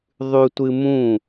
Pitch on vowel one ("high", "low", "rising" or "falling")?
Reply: high